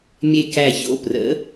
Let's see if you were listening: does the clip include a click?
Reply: no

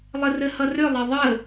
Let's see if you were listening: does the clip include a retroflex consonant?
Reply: no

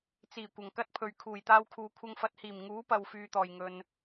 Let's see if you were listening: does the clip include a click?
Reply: no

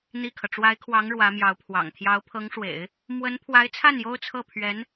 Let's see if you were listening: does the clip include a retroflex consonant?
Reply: yes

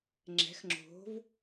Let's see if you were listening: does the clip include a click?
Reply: yes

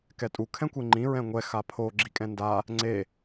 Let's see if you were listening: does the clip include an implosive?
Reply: no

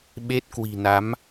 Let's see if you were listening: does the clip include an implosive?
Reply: yes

